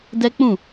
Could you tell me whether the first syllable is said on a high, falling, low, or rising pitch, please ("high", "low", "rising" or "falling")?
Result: high